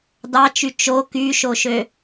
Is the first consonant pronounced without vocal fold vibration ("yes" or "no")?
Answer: no